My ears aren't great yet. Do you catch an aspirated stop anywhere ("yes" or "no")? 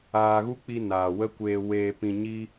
no